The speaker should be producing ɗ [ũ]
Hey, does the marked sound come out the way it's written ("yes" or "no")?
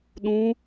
yes